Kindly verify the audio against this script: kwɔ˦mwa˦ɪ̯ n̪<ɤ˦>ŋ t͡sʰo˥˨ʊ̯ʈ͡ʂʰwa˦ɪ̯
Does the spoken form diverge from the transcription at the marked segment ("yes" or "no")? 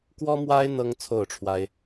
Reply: no